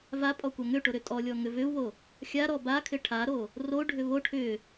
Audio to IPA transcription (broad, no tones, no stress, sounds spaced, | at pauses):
v a pʼ ɔ kʷ a ŋ ʏ ʈ o ɾ ʏ tʼ ɔ lʲ ɔ ŋ ʏ v ʏ u̯ β o | xʲ a ɾ ɔ b a kʰ ɪ ʈʰ a ɾ o | r o ɖʱ ʏ β o ʈʰ ʏ